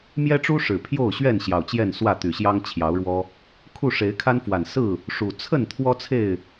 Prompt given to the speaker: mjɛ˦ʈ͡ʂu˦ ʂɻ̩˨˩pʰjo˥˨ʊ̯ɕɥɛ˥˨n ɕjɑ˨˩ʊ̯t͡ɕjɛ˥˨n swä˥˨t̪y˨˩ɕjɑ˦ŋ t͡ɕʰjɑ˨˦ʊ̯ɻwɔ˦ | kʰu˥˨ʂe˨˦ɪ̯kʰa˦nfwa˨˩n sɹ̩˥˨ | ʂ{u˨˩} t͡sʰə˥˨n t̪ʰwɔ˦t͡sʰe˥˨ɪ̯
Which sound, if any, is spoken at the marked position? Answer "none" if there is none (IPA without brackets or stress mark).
u˨˩